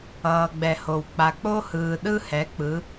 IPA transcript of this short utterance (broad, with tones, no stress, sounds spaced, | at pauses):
ʌː˨ ɡ͡b ɛ˨ h o˨ w k͡p a˨ k͡p o˦ h ɯː˨ ɗ ɯ˦ h ɛ˨˦ k͡p ɯ˨˦